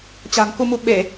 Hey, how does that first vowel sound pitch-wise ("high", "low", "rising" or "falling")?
low